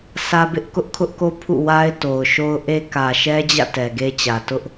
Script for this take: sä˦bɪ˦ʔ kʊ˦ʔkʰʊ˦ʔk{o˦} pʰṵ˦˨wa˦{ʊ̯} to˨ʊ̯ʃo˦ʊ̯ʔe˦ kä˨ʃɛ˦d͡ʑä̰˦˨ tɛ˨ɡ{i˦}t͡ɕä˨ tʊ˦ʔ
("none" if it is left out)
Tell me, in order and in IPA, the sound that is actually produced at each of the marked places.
o˦, ɪ̯, e˦

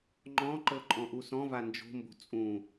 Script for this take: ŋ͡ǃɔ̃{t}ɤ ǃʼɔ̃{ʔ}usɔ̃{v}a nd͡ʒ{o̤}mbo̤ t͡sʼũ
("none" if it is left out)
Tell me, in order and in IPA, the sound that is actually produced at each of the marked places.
ǃ, ʔ, v, o̤

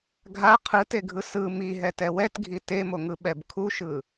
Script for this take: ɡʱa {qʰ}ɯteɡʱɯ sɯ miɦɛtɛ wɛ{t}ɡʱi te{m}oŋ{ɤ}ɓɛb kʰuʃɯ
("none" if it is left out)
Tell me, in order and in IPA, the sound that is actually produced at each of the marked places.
qʰ, t, m, ɯ

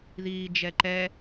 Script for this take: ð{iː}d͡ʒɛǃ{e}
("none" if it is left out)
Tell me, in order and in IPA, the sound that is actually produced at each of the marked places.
iː, ɛ

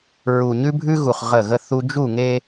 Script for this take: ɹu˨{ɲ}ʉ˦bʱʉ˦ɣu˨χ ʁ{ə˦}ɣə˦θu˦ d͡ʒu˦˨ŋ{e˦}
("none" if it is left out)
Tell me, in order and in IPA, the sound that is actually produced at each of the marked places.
ɲ, ə˦˨, e˦

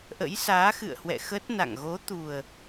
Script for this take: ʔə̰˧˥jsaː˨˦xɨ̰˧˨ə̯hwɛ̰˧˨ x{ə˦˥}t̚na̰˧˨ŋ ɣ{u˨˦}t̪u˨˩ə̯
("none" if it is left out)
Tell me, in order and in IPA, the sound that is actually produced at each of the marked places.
ə˦˥, o˨˦

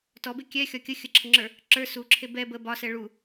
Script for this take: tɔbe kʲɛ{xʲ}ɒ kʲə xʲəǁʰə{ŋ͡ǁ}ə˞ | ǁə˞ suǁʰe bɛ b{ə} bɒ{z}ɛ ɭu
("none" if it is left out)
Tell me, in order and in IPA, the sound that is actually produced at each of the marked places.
xʲ, ŋ͡ǁ, ə, s

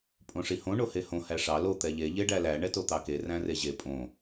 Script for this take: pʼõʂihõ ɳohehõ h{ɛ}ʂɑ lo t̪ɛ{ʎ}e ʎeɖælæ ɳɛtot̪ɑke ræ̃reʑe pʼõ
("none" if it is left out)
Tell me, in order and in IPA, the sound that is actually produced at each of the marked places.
æ, ʎ

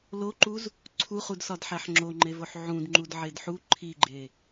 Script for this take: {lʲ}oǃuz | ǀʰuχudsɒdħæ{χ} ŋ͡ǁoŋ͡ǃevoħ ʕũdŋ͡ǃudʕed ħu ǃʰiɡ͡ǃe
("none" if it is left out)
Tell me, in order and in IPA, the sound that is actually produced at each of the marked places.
l, ħ

